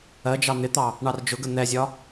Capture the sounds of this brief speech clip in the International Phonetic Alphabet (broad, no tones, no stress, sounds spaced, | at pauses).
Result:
ɜ d͡ʒ ɑ n̪ ɪ t̪ ɑ | ɳ ɑ r d͡ʒ ʊ ɡ ə n̪ ɛ zʲ ɒ